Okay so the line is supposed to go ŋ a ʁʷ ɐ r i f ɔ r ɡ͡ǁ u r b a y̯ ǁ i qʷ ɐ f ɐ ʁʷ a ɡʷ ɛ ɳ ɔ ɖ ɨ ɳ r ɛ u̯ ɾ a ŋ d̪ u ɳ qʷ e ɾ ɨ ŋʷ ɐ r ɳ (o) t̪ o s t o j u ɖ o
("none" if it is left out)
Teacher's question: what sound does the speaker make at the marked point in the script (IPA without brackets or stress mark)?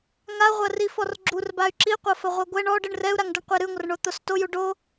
o